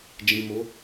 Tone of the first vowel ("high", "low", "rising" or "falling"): low